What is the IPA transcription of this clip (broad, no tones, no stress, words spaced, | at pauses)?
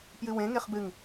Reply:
pjɨwẽ ŋeχbɨŋ